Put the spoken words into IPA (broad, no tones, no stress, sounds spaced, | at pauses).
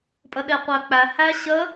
pʼ ə ɗ e qʷ æ k͡p æ h æ ɕ ə